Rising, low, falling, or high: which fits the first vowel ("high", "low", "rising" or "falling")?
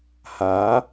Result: rising